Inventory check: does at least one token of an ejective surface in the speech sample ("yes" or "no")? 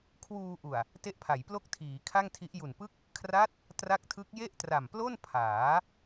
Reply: no